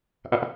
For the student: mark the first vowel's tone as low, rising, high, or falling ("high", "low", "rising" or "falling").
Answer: high